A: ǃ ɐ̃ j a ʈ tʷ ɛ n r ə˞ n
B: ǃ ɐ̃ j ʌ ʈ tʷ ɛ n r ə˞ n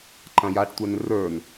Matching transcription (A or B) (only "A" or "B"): A